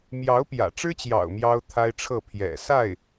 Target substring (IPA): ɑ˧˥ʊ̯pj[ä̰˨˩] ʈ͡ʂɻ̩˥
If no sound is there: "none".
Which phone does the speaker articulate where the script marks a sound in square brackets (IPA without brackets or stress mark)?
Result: ä̰˨˩